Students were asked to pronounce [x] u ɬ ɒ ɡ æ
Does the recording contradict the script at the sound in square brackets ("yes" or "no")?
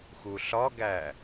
no